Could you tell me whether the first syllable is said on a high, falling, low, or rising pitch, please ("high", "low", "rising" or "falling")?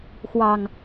low